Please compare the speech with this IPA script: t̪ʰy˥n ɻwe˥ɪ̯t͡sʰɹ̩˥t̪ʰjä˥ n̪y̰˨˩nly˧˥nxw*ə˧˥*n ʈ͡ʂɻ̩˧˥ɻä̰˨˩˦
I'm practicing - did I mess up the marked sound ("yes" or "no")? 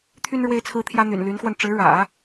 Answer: yes